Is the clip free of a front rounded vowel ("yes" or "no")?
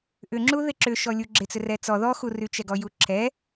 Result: no